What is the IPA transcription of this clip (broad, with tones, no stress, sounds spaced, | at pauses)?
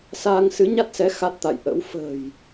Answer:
s aː˧ ŋ s ɨ˨˦ ɲ a˦˥ t̚ s ɛ˨˦ x a˦˥ t̚ t̪ a̰˧˨ j ʔ ə̰˧˥ w f ə̤ː˨˩ j